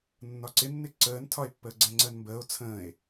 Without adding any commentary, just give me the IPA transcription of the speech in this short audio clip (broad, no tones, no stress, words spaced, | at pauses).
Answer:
nːɒǀɪnːɪ ǀəːn tʰɒe̯pːəː ɡ͡ǀɛ̃ŋ͡ǀɜnmbəːo̯ t͡sʰə̃ːe̯